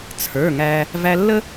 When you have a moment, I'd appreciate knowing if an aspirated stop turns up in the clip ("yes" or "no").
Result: yes